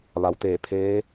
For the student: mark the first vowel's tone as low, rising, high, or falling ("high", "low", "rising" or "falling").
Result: low